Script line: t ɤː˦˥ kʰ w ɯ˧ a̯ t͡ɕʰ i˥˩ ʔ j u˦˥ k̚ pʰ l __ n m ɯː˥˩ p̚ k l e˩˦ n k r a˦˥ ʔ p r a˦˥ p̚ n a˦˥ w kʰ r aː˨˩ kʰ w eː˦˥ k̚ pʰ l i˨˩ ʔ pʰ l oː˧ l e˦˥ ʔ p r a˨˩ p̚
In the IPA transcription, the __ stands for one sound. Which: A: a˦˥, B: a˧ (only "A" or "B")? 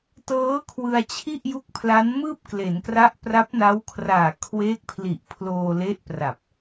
A